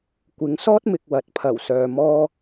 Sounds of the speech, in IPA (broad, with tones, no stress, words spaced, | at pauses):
kʷɪ˨˥ŋsɔː˥t̚ mɪ˨k̚wɐ˨t̚pʰɐ˨˩wsœː˨ mɔː˧